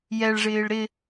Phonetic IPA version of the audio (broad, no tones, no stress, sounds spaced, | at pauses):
j ɛ ɭ ʐ ɪː ɭ ɾ ɪ